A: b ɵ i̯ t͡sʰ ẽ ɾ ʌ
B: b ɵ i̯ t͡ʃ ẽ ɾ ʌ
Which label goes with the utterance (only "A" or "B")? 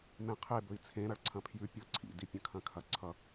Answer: A